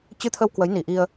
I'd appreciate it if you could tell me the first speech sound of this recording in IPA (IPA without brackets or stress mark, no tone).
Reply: t͡ɕ